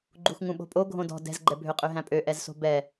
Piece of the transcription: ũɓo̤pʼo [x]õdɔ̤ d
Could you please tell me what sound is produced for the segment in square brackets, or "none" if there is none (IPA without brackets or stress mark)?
ɡʱ